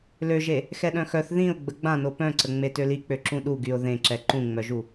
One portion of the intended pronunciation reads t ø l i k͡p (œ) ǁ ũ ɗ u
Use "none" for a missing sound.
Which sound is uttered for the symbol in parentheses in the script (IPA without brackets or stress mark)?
ø